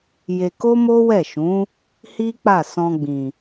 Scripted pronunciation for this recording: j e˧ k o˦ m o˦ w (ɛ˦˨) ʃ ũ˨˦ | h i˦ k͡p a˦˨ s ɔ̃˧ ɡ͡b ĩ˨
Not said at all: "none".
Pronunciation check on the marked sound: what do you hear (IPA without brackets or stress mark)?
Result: ɛ˦˨